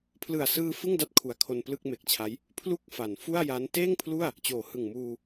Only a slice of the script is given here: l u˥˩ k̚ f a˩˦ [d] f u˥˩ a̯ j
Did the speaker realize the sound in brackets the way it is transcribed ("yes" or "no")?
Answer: no